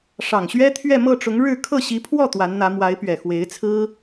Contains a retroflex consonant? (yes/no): yes